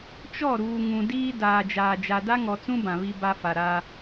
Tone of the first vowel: falling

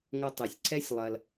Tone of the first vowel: high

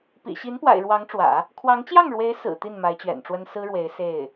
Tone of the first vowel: low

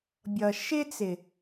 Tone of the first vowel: low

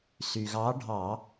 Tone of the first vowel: low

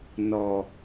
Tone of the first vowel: low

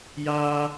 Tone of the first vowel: high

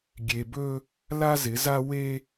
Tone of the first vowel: low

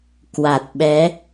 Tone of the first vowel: low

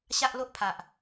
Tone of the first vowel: high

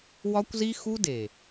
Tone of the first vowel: high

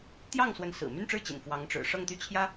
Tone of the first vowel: falling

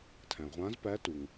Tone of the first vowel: low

